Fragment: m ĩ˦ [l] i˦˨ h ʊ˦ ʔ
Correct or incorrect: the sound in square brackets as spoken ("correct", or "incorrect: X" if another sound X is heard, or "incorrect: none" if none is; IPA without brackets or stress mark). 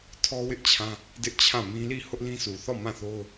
correct